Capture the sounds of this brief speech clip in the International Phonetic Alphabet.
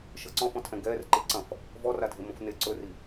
ʃ ɤ ǀ ɔ̃ f ɔ̃ tʰ ɛ̃ ɡ ɛː r ǃ i ǀ ɐ̃ f | v ɔ r a dʱ e m õ f n e ǀ ɵ r i

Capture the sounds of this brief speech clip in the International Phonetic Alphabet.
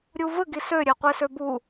ɾʲ u v ə ɡ i s ø ɾʲ ɛ qʷ e s ø b u

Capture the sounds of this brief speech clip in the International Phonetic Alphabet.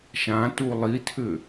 ʃ ã t u lˠ i tʰ ʏ

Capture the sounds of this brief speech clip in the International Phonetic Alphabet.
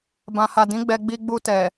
b ã˨ h a˨ d ĩ˨˦ ɡ͡b ɛ˧ ɡ͡b i˧ ɡ͡b u˧ t ɛ˨

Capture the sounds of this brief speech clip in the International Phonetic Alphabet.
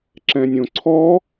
ǁ ɛ̃ nʲ õ ǀʰ ɔ

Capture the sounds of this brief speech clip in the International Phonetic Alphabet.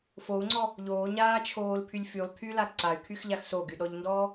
f o u̯ ŋ͡ǀ ɔ | ʎ oː ɲ aː t͡ʃʰ oː l pʰ y lʲ f y lˠ pʰ y l a ǀ a y̯ kʰ y x ʎ a x s o ɡ y ɗ ɔ ʎ n d ɔː

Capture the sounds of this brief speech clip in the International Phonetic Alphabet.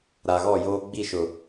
ɾ a˨ ɣ ɔ˦˨ j oː˦ ɡ͡b i˦˨ ʃ ʊ˨

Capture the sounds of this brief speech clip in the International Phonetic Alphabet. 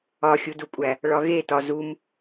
ɒ xʲ u d u kʷʼ æ | ɭ ɒ ɣ e t ɒ z u m

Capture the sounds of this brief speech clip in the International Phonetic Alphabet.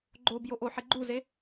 ɡ͡ǃ o b j o ʔ o ħ e ɡ͡ǃ u z e

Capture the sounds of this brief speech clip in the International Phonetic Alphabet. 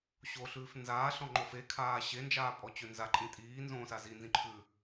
ɕ o ɬ ʉː f n z aː ɬ ɔ̃ ŋ͡ǃ o f e kʰ aː ɕ e n d͡ʒ aː pʼ ɔ t͡ɕ ø n z a ǃʼ ĩ tʼ iː n z õː s a z i n z ĩ ǃʰ ʉ

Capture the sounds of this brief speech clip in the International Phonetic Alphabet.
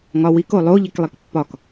ŋ ɒ w i k o lˠ o ʎ e k lˠ i k pː ɒ k

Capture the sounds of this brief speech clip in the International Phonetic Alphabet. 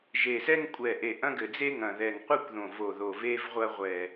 ʒ e˨˩ s ɛ˥ ŋ kʷʼ ɛ˨˩ ʔ e˨˩ ʔ ɐ̃˥ ɡ ɘ˨˩ d͡z e˥ ŋ ɐ̃˨˩ ð ɛ˨˩ ŋ qʷ ɨ˥ kʷ ð õ˨˩ v o˨˩ ð o˨˩ v e˥ v ʁʷ ɐ˥ ʁʷ ɛ˨˩

